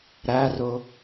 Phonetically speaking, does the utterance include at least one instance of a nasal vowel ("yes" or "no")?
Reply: no